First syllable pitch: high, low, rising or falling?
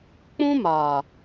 high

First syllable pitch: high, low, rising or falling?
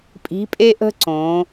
rising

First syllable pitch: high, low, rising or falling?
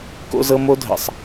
high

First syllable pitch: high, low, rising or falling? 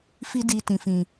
high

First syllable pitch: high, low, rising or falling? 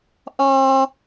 high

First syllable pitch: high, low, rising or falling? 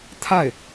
falling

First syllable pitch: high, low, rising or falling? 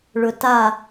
low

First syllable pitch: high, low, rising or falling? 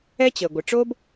high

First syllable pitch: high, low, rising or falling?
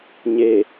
low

